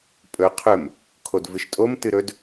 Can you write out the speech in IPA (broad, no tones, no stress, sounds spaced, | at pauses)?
pʼ ɵ qʰ ɵ m | kʰ o d v ɨ ʃ tʼ o m t ɨ ɾ ɵ d